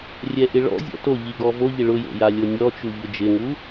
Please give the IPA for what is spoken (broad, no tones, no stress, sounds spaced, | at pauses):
rʲ ɛ ʔ ɪ ɭ ɔ̰ zʲ ɔ̰ t o ʎ i ɡ ɔ v o ʎ ɪ ɭ ʊ j o̰ j a lʲ o nʲ ɔ t͡ʃ u ʎ ʊ d͡ʒ ɪ ŋ u